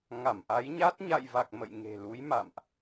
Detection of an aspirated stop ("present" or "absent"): absent